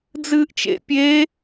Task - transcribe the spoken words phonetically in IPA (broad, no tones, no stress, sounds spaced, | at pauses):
d͡z ɨː ʔ t͡ʃ ḛ pʲ e